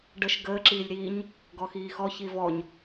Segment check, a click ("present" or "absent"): present